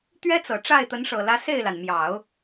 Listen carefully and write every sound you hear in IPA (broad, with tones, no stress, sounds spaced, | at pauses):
t̪ ɥ ɛ˥ t͡s ɤ˨˩ ʈ͡ʂ a˥˩ ɪ̯ t̪ ə˧˥ n ʂ ɤ˨˩ l ä˧˥ s e˥˩ ɪ̯ l a˩ n m j ɑ˨˩˦ ʊ̯